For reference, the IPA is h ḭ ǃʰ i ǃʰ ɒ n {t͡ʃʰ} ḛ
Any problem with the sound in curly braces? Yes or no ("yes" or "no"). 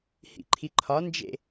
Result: yes